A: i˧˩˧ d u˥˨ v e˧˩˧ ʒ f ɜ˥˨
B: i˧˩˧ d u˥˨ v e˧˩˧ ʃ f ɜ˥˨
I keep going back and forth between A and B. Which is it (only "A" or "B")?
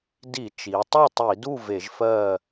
A